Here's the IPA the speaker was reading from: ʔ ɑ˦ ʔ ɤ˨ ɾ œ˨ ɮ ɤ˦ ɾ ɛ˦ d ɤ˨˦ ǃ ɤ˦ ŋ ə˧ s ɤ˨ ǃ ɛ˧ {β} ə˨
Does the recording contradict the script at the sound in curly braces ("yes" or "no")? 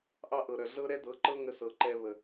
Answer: no